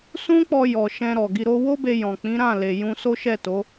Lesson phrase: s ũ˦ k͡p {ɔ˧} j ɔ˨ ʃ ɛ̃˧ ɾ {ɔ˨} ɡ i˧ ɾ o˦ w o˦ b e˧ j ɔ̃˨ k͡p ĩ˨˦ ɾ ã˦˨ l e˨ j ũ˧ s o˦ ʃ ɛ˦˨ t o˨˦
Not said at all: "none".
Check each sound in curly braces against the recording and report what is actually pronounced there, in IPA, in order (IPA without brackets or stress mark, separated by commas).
ɔ˧, ɔ˨